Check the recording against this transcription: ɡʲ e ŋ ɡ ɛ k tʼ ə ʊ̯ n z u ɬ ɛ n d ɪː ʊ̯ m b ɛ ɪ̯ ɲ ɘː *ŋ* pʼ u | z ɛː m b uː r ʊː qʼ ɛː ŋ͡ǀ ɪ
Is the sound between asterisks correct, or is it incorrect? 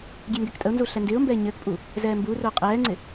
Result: incorrect: k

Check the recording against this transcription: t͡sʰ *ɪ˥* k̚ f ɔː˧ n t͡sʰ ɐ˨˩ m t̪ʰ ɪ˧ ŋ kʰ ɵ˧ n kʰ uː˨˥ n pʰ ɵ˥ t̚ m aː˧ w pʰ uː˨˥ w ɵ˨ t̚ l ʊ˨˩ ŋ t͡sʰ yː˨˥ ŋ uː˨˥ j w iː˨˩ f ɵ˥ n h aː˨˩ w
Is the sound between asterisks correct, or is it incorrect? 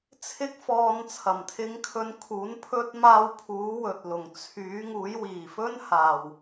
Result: correct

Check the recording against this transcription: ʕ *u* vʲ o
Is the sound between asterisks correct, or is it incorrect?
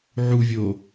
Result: correct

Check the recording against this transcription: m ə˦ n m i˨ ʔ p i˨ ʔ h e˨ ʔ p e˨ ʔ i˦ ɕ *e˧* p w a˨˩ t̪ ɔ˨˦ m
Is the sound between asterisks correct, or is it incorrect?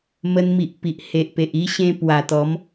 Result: incorrect: ẽ˧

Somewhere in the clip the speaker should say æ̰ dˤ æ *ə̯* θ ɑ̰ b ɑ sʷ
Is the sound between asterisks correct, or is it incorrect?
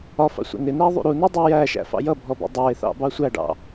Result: incorrect: ɪ̯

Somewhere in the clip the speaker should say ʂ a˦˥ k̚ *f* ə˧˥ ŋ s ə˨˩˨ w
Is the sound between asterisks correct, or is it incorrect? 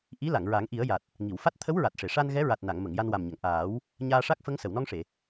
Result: correct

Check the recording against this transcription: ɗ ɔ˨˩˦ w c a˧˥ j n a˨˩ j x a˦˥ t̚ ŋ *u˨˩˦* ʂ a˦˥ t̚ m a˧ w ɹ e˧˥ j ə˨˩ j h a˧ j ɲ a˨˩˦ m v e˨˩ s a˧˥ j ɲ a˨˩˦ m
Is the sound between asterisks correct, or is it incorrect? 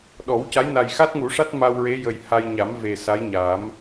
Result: correct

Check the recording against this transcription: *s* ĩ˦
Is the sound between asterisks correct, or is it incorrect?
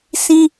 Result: correct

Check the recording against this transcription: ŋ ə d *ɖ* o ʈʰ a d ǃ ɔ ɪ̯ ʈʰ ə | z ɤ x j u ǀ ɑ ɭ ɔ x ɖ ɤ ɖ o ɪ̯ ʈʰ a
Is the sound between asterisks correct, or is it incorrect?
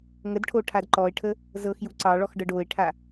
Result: incorrect: ʈʰ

